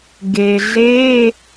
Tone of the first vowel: low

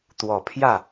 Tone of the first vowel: low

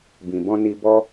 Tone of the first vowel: low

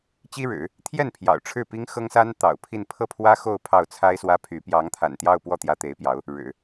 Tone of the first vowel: high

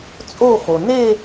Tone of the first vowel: falling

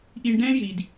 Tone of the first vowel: low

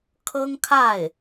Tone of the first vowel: high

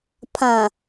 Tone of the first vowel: low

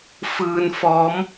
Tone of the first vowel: low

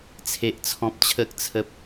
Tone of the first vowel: high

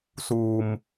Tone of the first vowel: low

